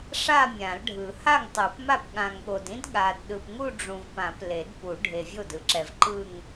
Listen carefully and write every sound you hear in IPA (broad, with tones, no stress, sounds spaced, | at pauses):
ʂ a˥˧ mʲ ã˨˩˦ l ɖʱ ɯ˨˩˦ h a˥˩ ŋ tˤ u˨˩˦ p m a˥˩ p ɠ ã˨ ŋ ɠ o˨ d ĩ˥ d ɠ a˨ d ɗ ɯ˨ p ŋ u˥˧ ɖ͡ʐ ũ˨ v p ã˨˩˦ p l e˨˩˦ d p u˨˩˦ ɖʱ e˨ vʲ o˥˩ d ɯ˨ ǁ ɛ˨ v ǃ ɯ˥˧ ŋ